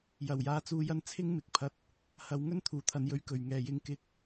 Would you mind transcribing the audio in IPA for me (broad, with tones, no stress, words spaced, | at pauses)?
jɐ˨˩wjaː˨˧t͡suː˨˧jɐ˧n t͡sʰɪ˥ŋmɪ˨˥k̚pʰɐ˧t̚ | hɐ˨˧w ŋɵ˥n t̪ʰuː˨˩t̪ʰɐ˨˧njɵ˧ɥ kɵ˨ɥ ŋɛː˨jɪ˧ŋ kɪ˧k̚